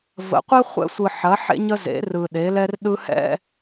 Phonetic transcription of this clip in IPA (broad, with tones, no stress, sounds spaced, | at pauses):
v ə̰˨˦ qʷ ɛ˦ χʷ ɛ̰˦ sʷ ɯ˨ ħ ɐ˨˦ ħ ḛ˦ ɲ ə˦ z ḛ˨˦ r ɯ˨ ɗ e˨˦ l ɛ˦ r ɗ ɯ˦ h ɛ̰˦